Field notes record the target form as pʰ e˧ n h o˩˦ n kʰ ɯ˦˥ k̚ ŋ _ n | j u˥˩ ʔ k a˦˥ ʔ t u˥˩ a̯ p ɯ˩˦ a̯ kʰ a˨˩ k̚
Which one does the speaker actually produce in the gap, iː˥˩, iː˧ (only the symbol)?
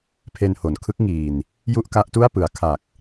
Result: iː˧